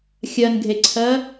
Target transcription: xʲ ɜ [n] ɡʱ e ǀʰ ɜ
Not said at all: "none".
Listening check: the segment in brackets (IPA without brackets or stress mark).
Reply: n